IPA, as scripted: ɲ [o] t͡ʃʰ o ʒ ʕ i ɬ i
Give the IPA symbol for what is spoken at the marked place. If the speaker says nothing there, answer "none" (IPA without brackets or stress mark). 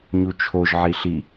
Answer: u